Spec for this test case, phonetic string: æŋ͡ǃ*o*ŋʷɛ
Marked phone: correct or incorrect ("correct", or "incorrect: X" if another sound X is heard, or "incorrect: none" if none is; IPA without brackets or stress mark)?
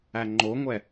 correct